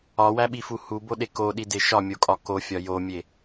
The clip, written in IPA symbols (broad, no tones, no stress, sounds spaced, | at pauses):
ɒ w æ ɓ i f u h u b o ɗ e k o ɗ i d e ʃ ɒ mʲ o kʼ ɒ k o fʲ ɒ j o mʲ e